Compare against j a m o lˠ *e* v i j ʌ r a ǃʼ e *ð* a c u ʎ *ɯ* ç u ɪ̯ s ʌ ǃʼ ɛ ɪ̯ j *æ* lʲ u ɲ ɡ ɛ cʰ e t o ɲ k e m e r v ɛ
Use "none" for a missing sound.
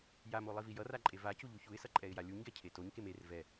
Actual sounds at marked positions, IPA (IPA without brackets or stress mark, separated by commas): i, v, u, a